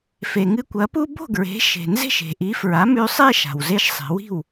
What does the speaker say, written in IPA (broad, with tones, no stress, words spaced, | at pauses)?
fe˩ŋɨ˧kʷɐ˩˥pu˥ bo̤˥˩ɡɹe̤˩˥ ʃe̤˩ nze̤˥˩ʃe̤˩ʔi˩˥fɹa˩˥ mʉ˧sˤe˥ ʃa̤˩wze˧ʃsˤe̤˩˥wi̤˥˩w